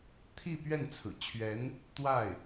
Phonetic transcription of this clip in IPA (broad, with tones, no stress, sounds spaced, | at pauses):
t̪ʰ i˥˧ p ɥ ɛ˥˩ n t͡sʰ ɹ̩˨˩ t͡ɕʰ ɥ ɛ˧˥ n | t̪ w a˥˩ ɪ̯